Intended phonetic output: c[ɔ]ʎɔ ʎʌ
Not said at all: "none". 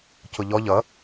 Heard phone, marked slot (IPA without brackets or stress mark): ʊ